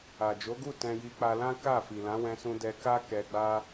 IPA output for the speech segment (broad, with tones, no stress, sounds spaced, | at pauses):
a˨ d͡ʒ o˨˦ ɡ u˦˨ t ɛ̃˧ j i˧ k͡p a˧ l ã˦ k a˦˨ f i˨ l ã˨˦ w ɛ̃˦ s ũ˦ d ɛ˧ k a˦ k ɛ˧ ɡ͡b a˦